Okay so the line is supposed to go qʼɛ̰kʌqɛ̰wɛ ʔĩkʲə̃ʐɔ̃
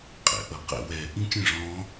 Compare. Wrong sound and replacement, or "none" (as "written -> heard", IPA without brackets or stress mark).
k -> ʔ